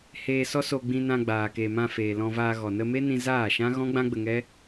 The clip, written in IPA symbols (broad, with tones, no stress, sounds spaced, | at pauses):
h eː˧ s ɔ˦ s o˧ ɡ͡b ĩ˧ n ã˧ ɡ͡b aː˨ k e˨ m ã˧ f eː˨ l ɔ̃˧ v aː˧ ɣ ɔ˨ n ə˧ m e˦ n ĩ˧ z aː˦˨ ʃ ã˦ ɣ ɔ̃˦ ɡ͡b ã˦ ɡ͡b ə˧ ŋ ɛ˦